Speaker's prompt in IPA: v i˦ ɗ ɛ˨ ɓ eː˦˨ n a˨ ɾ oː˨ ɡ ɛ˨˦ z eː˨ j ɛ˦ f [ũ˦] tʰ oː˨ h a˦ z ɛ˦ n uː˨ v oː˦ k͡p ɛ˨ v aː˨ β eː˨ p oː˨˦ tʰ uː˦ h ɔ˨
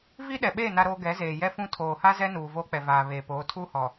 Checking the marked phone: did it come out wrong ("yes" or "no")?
no